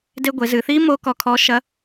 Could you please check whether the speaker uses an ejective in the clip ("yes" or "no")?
no